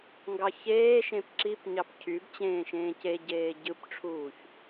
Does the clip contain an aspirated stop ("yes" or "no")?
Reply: yes